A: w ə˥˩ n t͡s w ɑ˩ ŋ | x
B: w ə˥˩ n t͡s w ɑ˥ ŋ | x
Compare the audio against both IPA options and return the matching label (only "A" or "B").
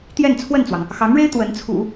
A